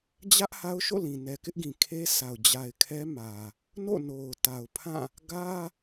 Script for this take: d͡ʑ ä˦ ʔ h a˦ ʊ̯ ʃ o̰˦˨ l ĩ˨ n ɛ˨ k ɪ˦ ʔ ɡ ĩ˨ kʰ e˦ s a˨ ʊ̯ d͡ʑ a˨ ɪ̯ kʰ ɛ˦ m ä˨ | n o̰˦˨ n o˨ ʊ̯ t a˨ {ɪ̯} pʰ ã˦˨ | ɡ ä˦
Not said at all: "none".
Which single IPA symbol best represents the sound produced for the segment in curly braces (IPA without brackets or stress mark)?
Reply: ʊ̯